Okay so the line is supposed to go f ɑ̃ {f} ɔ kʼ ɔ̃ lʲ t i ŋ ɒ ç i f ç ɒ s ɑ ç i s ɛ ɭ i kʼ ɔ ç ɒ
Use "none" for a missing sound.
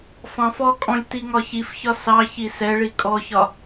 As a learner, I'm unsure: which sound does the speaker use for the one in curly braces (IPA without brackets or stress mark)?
f